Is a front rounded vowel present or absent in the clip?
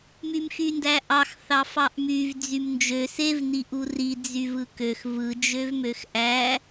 present